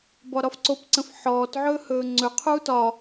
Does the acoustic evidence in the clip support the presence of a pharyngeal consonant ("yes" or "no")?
yes